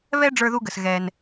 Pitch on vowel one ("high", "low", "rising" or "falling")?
high